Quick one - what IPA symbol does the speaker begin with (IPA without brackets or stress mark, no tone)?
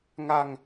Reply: ŋ